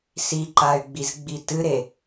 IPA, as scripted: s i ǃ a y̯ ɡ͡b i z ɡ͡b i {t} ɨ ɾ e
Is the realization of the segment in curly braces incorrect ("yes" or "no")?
no